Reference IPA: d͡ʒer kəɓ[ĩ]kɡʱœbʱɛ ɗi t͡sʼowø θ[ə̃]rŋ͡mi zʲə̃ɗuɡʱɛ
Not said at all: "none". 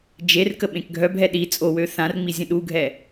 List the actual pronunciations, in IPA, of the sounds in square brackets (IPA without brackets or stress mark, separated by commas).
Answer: ẽ, ã